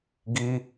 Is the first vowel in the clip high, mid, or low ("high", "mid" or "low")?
high